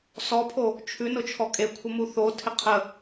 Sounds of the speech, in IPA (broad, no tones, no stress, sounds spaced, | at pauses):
s ɔ pʰ o | t͡ʃʰ ʉ n ʊ t͡ʃʰ ɔ kʼ e kʷʰ ə m u θ o tʰ ɪ qʰ ə